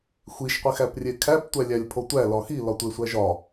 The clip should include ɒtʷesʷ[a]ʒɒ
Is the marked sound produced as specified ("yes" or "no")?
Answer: no